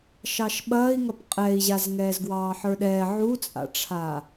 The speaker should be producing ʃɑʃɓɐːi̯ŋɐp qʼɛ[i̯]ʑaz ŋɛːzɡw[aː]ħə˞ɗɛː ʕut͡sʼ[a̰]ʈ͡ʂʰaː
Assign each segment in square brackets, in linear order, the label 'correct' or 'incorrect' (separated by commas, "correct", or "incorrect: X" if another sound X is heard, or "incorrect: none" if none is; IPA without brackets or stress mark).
correct, incorrect: ɑː, correct